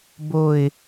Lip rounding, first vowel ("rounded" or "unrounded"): rounded